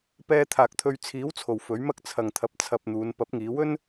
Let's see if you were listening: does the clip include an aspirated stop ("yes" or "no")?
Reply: yes